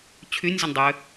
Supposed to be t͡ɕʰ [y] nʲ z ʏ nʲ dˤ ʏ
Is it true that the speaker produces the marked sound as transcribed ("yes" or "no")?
yes